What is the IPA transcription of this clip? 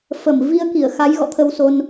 f ə˧˩ m v i˧ ə̯ k i˧˩ ə̯ x a˨˦ j ɣ ɔ̰˧˨ t̪ʰ ə˧ w s o˧ n

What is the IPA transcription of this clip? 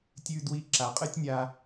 tʲ ʉ˧ d w i˧ ǁ a˩ qʼ ɨ˥ tʲ nʲ a˧

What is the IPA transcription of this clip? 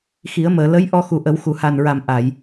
x i˨˩˦ ə̯ m əː˨˩˨ l ə˧˥ j ʔ ɔ˧ x u˨˩ ʔ ə˨˩˦ w x u˨˩˨ h a˨˩ n ɹ a˨˩ m ʔ a˨˩˨ j

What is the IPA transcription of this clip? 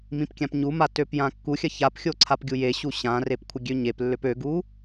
m ĩ p kʲ ã p ɲ u m a t ø p j ã kː u xʲ ɐ ç a p xʲ o ǀʰ a p ɡʲ u j e ɕ u ɕ ã r e p kʷʰ ɐ ɡʲ ø ɲ e p lː ø p ø ɡ u

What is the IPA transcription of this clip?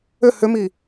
ʏ h ʏ m i

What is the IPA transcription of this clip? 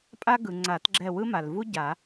pʼ a˦ ɡ ɯ˩ ŋ͡ǀ a˨˩˦ t ɡ͡ǁ ɛ˦˨ w ɯ˦ m a˩ l v u˦ ɟ a˨˩˦

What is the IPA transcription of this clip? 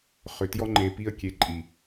χ ʏ˨ t j ɔ˦ ŋ͡ǃ e˨ p i˦ ə̯ kʲ e˨ ǃʼ i˨

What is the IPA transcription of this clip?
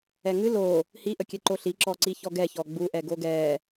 ɛ ŋ ɨ l o | h i ʔ ə kʲ ɛ ǃ o ɬ i ǁ ɔ ǀ i ç ɔ ɡ ɛ ç ɔ ɡ͡b u ʔ ɛ ɡ o ɡ ɛ

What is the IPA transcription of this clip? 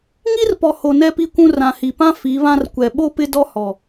ŋ i˦ r p ɔ˨ h o˨ n ɛ˦ p i˦ kʷ ũ˦ r ã˨ h i˨ p ã˦ f i˨˦ β ã˦ r kʷ ɛ˨ ɓ o˦ p ɪ˦ d ɔ˦ h ɔ˨

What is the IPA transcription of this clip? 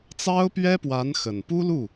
t͡s ɑ˥ ʊ̯ p ɥ ɛ˥ p w a˧˥ n x ə˨˩ n p u˥ l u˥˩

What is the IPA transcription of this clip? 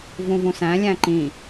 v ũ v ũ s æ̃ lʲ æ̃ ǃ ĩ

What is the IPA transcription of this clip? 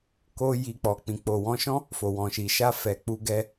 k o˧ j i˨ k͡p ɔ˨ k͡p ĩ˧ k͡p o˨ w ɔ̃˧ ʃ ɔ̃˦ | f o˨ w ɔ̃˨ ʃ i˨ ʃ a˧ f ɛ˨ k͡p u˧ ɡ ɛ˧

